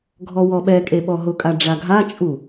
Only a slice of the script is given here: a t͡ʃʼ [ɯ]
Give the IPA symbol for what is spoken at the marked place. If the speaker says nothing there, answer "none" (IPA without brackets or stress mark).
u